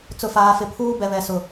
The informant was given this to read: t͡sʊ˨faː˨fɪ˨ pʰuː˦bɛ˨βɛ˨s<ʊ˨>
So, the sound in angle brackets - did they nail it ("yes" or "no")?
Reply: yes